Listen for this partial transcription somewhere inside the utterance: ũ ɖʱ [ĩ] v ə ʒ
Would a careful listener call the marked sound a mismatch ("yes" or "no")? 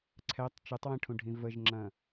no